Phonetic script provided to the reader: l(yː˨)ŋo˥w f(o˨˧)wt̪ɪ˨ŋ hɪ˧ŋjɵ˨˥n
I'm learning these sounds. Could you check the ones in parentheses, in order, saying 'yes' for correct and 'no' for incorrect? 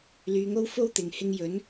no, no

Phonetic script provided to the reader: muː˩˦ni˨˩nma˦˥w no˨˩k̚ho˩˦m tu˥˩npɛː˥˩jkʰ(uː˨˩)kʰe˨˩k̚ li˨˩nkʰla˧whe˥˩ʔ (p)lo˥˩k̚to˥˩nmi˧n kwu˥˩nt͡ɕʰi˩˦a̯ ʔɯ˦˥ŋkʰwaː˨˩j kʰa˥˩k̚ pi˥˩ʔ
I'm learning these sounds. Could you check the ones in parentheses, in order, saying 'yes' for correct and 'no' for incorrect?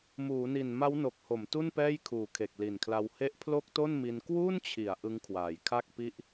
yes, no

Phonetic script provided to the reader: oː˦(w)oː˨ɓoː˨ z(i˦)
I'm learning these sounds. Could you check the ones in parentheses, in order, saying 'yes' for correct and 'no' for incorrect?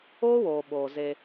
yes, no

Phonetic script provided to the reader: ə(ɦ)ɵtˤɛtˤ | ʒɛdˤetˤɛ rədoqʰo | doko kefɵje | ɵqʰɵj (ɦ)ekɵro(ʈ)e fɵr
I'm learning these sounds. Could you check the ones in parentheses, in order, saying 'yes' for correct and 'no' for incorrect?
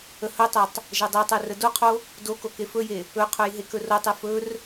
no, yes, no

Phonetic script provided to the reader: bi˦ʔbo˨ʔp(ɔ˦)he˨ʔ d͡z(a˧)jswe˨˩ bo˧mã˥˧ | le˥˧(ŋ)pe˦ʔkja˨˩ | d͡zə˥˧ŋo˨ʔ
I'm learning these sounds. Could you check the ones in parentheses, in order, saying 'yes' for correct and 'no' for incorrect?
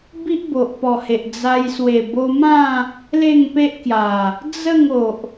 no, yes, yes

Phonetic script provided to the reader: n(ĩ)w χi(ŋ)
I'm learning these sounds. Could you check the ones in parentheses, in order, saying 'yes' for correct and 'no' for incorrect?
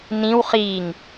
yes, yes

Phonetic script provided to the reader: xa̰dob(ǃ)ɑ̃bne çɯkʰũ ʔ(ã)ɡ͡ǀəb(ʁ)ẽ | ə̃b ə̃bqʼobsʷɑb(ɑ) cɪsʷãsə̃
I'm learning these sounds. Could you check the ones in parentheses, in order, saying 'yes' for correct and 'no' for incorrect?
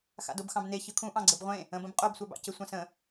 no, no, no, no

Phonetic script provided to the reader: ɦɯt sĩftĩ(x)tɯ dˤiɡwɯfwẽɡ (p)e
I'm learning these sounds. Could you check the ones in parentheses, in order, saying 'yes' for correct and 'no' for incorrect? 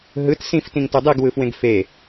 no, no

